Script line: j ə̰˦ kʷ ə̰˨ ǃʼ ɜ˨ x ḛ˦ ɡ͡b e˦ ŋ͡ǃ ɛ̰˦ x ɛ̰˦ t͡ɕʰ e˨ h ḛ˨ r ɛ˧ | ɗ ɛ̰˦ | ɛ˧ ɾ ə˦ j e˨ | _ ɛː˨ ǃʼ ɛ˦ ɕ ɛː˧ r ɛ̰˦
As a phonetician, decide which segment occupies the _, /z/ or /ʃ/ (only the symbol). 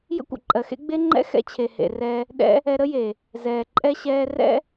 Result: z